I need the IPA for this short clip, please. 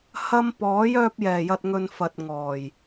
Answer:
h ɐ˧ m p ɔː˨˥ j œː˧ p̚ j ɛː˨˩ j ɐ˨ t̚ ŋ ɵ˨ n f ɐ˨ t̚ ŋ ɔː˨˩ j

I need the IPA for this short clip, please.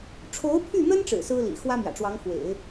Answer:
ʈ͡ʂʰ o˧˥ ʊ̯ pʰ y˥˩ n̪ ə˥ n ʈ͡ʂ ɻ̩˨˩ s ɹ̩˥ l ḭ˨˩ x w ä˥ m j ä̰˨˩ ʈ͡ʂ w ɑ˧˥ ŋ x w ḛ˨˩˦ ɪ̯

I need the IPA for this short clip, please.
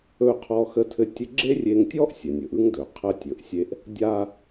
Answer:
ɵ˧ qʰ ɔ˧ x ə˧ tʰ ɘ˧ tʲ ɘ˧ ɡ͡ǁ e˥ rʲ e˧ ŋ tʲ ɔ˥ ʔ sʲ ə˩ nʲ ɵ˩ ʔ ɯ˥ ŋ d ɵ˩ qʰ ə˧ tʲ ɵ˩ ʔ sʲ e˧ ʔ | dʲ a˧

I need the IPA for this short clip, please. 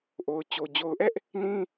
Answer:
ʔ o˨ ʊ̯ t͡ɕ o˨ d͡ʑ o˨ ʊ̯ ʔ ɛ˦ ʔ | n ĩ˦

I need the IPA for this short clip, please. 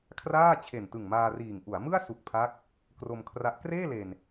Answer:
kʰ r aː˥˩ t͡ɕʰ e˨˩ n t ɯ˨˩ ŋ m aː˧ r iː˨˩ ŋ ʔ u˩˦ a̯ m ɯ˥˩ a̯ s u˨˩ k̚ pʰ a˦˥ k̚ | k r o˧ m kʰ r a˦˥ ʔ k r eː˥˩ l e˨˩ n

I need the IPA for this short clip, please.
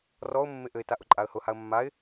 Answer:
r ɔ ʊ̯ mː ɪ ʔ ɘ ɪ̯ t a ʔ ʊ ǃʼ a ə̯ h ʊ h a ə̯ mː a ɪ̯

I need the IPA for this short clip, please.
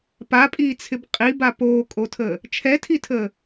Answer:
p a pʼ iː t͡sʰ ɪ b qʼ i b a p oː kʼ o tʰ əː | t͡ʃʰ ɛ tʰ i tʰ əː

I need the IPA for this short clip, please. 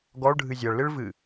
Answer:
ɡ ɔ ɭ ɖʱ ɨ zʲ ʌ ɭ l ɨ ɭ v ɨ

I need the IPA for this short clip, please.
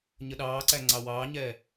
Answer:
ɲ ə ɗ ɑː ǀ æ ŋ͡ǀ ɑ w ɑː ɲ ɛː

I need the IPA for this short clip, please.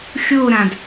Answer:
xʲ o ɾ ã d

